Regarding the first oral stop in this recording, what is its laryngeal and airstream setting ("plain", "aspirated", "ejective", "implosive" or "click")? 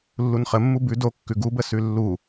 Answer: plain